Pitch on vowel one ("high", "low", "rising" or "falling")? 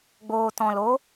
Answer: low